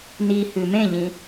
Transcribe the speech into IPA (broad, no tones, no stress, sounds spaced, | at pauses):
n i h ʉ m ẽ ʎ ĩ